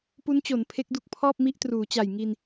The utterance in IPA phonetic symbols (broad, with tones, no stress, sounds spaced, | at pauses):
p u˦˥ n t͡ɕ o˩˦ n pʰ e˦˥ k̚ d u˥˩ k̚ pʰ ɔː˥˩ p̚ m i˦˥ ʔ t r uː˩˦ t͡ɕ a˨˩ j ŋ i˧ n